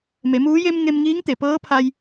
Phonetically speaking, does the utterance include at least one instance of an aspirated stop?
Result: yes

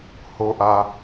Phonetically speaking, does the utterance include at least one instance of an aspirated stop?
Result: no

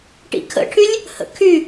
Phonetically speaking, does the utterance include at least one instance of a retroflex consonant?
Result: yes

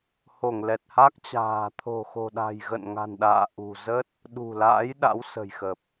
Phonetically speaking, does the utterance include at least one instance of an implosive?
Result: yes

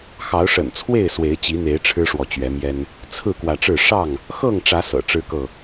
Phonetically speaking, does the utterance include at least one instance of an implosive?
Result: no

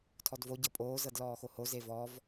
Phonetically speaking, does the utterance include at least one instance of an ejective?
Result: yes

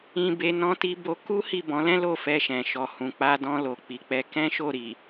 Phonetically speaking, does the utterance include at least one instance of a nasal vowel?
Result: yes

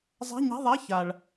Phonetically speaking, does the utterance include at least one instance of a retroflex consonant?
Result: yes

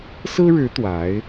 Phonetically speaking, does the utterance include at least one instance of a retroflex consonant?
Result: yes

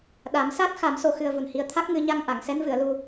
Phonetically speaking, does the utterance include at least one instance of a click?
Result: no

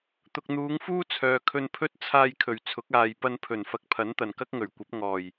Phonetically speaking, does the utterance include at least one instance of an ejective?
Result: no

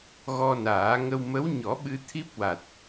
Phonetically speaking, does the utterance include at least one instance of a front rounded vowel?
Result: no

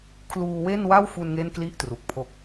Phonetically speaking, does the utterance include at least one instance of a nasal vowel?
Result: no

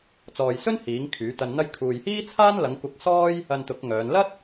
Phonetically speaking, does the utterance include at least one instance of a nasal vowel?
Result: no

